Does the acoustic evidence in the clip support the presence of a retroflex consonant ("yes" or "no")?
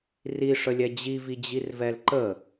yes